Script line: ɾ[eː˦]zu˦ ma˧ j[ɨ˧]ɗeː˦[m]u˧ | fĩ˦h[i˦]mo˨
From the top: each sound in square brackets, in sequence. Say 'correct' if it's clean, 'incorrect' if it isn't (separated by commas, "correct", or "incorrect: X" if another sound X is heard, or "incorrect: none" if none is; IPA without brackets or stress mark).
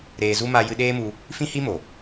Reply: incorrect: eː˧, correct, correct, correct